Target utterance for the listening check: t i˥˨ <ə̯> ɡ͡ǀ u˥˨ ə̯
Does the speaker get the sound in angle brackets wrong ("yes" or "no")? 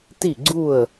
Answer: yes